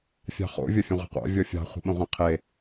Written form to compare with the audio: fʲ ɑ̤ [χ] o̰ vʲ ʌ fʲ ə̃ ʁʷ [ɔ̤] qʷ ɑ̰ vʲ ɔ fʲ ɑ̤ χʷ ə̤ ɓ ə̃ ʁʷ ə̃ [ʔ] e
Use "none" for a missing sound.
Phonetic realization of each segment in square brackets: χ, ə̤, qʰ

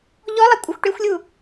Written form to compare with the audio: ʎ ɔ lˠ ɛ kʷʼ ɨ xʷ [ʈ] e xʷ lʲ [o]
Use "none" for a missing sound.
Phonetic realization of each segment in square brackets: ʈ, u

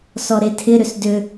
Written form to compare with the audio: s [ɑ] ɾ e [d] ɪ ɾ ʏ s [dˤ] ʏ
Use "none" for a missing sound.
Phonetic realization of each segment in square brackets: ɔ, tʰ, d

